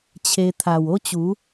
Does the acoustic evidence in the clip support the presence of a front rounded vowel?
no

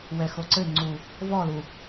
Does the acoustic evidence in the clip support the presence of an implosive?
no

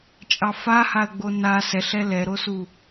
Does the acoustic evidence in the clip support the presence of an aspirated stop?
no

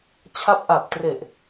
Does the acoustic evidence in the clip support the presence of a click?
no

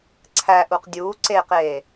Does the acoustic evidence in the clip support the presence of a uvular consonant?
yes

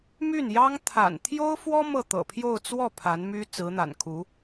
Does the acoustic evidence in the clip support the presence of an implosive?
no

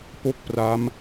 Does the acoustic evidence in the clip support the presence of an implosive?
no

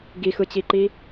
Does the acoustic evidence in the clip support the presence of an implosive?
no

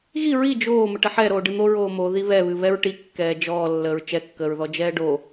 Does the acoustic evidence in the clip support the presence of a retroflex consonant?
yes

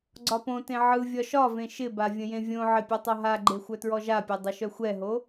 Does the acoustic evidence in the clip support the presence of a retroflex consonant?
no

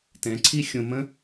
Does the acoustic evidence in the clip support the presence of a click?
yes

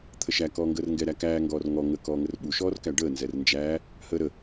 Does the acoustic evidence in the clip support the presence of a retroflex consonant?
yes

